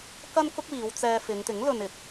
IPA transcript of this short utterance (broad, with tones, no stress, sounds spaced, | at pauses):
k ɐ˥ n k ʊ˥ k̚ w iː˨˧ w t͡s ɛː˧ f ɪ˨˧ ŋ t̪ ɪ˨˥ ŋ l ɵ˧ n ɪ˨ k̚